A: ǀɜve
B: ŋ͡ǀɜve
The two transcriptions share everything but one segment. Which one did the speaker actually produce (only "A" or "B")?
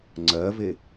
B